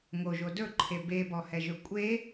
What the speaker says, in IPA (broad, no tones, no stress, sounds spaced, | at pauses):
ŋ o ʒ o d ɵ ǃʰ e b e b ɔ h ɛ ʒ ɵ kʷʼ e